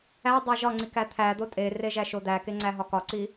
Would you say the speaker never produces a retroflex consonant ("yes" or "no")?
yes